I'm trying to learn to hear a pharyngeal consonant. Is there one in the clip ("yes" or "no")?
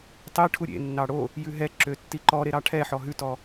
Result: yes